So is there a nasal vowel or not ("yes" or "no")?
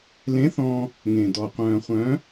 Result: yes